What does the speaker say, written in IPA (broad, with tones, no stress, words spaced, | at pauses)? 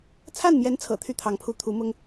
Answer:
t͡sʰa˥˩nmjɛ˧˥nt͡sʰɤ̰˨˩ t̪ʰy˥˩t̪ʰɑ˧˥ŋpʰu˧˥ t̪ʰu˧˥mʊ˥ŋ